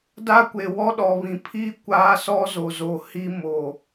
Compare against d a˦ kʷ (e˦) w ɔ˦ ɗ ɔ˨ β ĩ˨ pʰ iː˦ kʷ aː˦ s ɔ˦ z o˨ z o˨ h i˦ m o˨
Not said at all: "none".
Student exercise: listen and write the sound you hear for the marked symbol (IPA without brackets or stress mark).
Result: e˨